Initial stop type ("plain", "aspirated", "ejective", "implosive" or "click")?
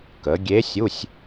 plain